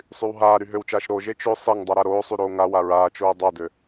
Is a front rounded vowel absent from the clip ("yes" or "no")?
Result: no